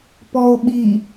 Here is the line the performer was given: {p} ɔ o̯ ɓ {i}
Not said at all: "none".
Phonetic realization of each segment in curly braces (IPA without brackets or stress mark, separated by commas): p, i